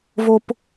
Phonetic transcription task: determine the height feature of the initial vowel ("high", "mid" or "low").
mid